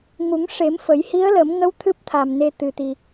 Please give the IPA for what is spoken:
ŋu˨˩˦ŋʂe˨˩˦m fə˨˩˦j hi˧˥ə̯lə˨˩˦mŋə˧˥w t̪ʰɨ˦˥p̚ t̪ʰa˨˩mne˧ t̪ɨ˨˩t̪i˨˩

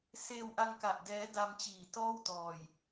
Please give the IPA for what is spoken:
seː˧wʔa˧ŋka˨˩ʔdɛː˦˥ da˧mt͡ɕiː˨˩tɔː˥˩wtɔː˨˩j

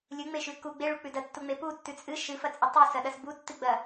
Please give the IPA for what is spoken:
lʲɨŋ͡meʃʉ ku ɡ͡beɭuk͡pʉ dɐtːuŋ͡me putːʉ t͡sʼɨ ʃɨfɐt͡sʼɨ tˤʉsɐɗɐs butːɨɡ͡bɐ

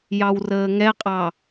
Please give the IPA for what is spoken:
jɑwrəːŋɛqʼɑ

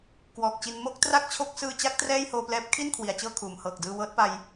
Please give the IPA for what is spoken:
kwɔː˨˩k̚t͡ɕi˧n mo˥˩k̚ tra˥˩k̚t͡ɕʰo˦˥k̚ sɯː˧t͡ɕa˦˥k̚ trɛː˥˩jhoː˧plɛː˦˥p̚ kʰi˥˩nkʰwi˩˦a̯t͡ɕɤː˧ kʰuː˩˦mhɤː˨˩k̚ dɯː˧wɤː˦˥t̚pa˧j

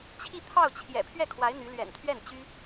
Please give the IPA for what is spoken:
t͡ɕʰi˥˧t̪ʰɑ˥˩ʊ̯t͡ɕʰjɛ̰˨˩ pʰɥɛ˥˩kʰwa˧˥ɪ̯ n̪y˧˥ lɥɛ̰˨˩nt̪ʰɥɛ˥˩nt͡ɕy˥

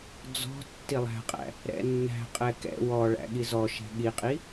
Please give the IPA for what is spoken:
d͡zɔ̤ tːilˠæ̤qʼæ̰ | ɾɛ̰nːæ̤qʼɛ kɛ̰ wɔɭæ̰ ɠizɔʃɛ̤ ɠiqʼi

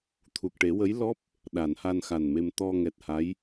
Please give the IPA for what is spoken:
t̪ʰu˨˩k̚ʈe˨˩˦wə˧˥j lɔ˦˥p̚ | ɗa˨˩˨nha˧nxa˨˩nme˧m t̪ɔ˧ŋɛ˨˩t̚ ha˧˥j

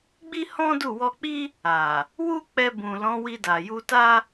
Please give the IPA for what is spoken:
ɡ͡bi˦hɔ̃˦du˦˨ wɔ˧k͡pi˦ | a˨ | wu˦ k͡pɛ˧ bũ˨lɔ̃˨˦wi˧da˨ ju˧ta˦

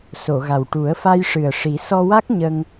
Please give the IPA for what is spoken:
so˨˩˨ ɣa˨˩w ʈu˨˩˦ə̯fa˧jʂɨ˨˩ə̯ ʂi˨˩˦ sɔ˧wa˦˥k̚ɲə˧ŋ

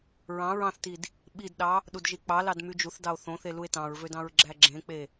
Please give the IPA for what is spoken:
ɹɑ̃ ɹɑ̃θtid | ɓidɗɑ | ɗudʒik͡pɑlɑd myd͡ʒuθdɑo̯ θõθe lue̯tɑ̃ɹvød ɑ̃ɹɡ͡ǁæɡ͡ǁẽk͡pe

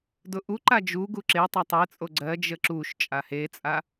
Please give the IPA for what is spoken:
dʊʔuǃa d͡ʒuɡu ǁetˤa tˤet͡sʼo ɡ͡ǀɜd͡ʒə ǁuʃ t͡ʃʼahet͡sʼa

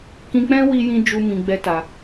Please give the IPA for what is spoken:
kĩ˧k͡pɛ̃˦wi˧jĩ˧ d͡ʒu˦mĩ˧ɡ͡bɛ˦ta˧

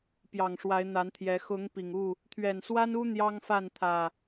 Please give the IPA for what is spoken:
pjɑ˨˩ŋʂwa˨˦ɪ̯n̪a˨˦nt̪ʰjɛ˨˦ xʊ˨˦ŋ pi˨˩ŋu˥˨ | t̪ʰɥɛ˨˩nswa˦nu˦ n̪jɑ˦ŋfa˥˨nt̪ʰä˨˩

